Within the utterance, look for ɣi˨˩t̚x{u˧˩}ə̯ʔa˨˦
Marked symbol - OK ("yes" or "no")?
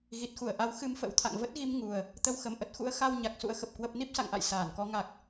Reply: yes